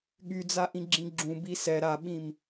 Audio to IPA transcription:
ɠ y d͡z a ʔ ĩ ɡ͡ǁ ĩ ɡ͡ǁ ũ b i s ɛ ɾ a ɓ ĩ m

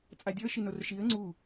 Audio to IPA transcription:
t͡sʼ a dʲ ɔ ə̯ ʃ i n o r ʃ i ə̯ ŋ͡ǀ u

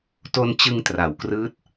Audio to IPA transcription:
t o˧ n t͡ɕ ɯ˧ ŋ t r a˩˦ w k r ɯː˦˥ t̚

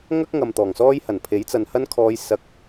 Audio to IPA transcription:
ŋ ɐ˥ k̚ ŋ ɐ˨ m t̪ ɔː˨˩ ŋ s ɔː˥ j h ɐ˨˩ n pʰ e˨˥ j t͡s ɐ˨ n h ɐ˥ n kʰ ɔː˧ j s ɐ˧ k̚

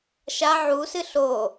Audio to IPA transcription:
ʃ a ʕ u s ɨ ɬ o

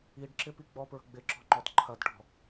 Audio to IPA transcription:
i ɖ ǁ ɪ p i ɡ͡b ɔ p ɹ ə̤ ɡ͡b ɪ ǁ ɔ̤ ŋ͡ǃ ɔ t ǃʰ ɐ d ʈ ɔ̤

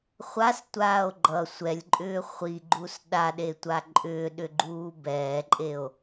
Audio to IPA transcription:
χʷ a s tʷ aː o̯ ɡ͡ǃ ʌ sʷ ɛ lʲ ǃʼ ʏː χʷ i ɡ͡ǃ u s ɗ a ɗ e tʷ a ǃʼ ʏː ɗ ʏ ɡ͡ǃ uː b ɛː ǃʼ e o̯

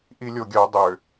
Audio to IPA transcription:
ʔ i lʲ o ɡʲ œ dˤ ʏ

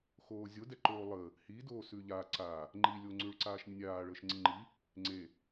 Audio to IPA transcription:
x oː zʲ o d ɛ ǃ oː lˠ ə | h i d oː s ʉ ʎ a ǀ a | ŋ͡ǃ i lʲ o ŋ͡ǀ ʉ ɭ ǀ aː ʃ nʲ ə nʲ aː ɭ əː ʃ ŋ͡ǀ i ŋ͡ǃ i | ŋ͡ǀ e

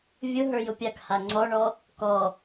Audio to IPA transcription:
vʲ ʊ ɦ ə˞ j ʊ pʲ a k h a ŋ͡ǀ ɔ ɳ ɔ | k ɔ

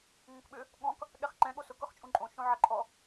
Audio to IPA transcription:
ŋ õ k ɓ ʏ | ɠ ɔ̃ k | ɠ ɛ χ ǃ ɛ̃ ɠ o s ʊ k ʊ χ t͡ʃʼ ũ ǃʼ õ ʃ õ ʕ ɐ ǃʼ ɔ

